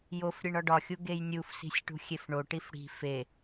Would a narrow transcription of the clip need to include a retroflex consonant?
yes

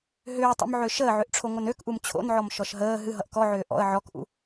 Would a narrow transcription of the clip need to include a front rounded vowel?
yes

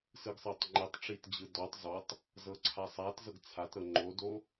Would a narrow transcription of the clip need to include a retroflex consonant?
yes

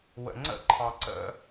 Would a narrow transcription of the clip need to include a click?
yes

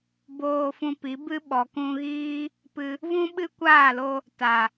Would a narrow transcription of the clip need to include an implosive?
yes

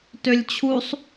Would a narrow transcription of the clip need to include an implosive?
no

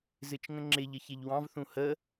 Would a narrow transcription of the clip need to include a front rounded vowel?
no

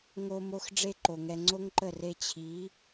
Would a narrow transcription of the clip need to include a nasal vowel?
no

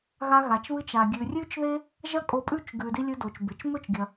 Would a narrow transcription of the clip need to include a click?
no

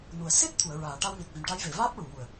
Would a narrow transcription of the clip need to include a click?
no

